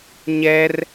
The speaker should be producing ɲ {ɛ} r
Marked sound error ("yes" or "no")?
no